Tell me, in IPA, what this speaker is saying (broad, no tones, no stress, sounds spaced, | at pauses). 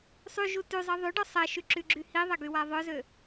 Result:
sˤ y ʒ u t y zˤ i ðˤ y ɖ ɔ sˤ ɛ ʃ y ǁ y ɡ͡ǁ y h i ðˤ ɛ ɡ y w a ðˤ œ z ø